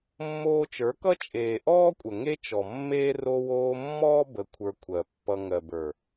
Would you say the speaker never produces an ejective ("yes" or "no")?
no